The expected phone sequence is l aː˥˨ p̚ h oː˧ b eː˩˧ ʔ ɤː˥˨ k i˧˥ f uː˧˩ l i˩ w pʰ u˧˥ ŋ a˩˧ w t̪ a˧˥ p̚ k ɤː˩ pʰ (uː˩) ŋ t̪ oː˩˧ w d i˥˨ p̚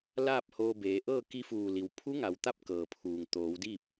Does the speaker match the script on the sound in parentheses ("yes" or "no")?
yes